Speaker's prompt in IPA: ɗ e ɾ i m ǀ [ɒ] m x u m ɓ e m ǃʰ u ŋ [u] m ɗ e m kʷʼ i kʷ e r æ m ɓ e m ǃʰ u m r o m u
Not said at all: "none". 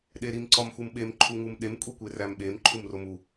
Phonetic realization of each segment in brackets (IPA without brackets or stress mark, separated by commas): ɒ, u